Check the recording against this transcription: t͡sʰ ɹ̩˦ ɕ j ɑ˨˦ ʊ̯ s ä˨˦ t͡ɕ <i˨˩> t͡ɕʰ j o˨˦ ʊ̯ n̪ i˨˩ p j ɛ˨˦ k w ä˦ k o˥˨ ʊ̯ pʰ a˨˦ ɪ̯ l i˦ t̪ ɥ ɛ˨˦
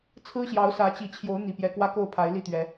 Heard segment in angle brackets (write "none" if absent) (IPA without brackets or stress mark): i˨˩